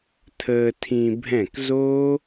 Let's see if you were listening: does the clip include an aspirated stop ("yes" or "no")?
yes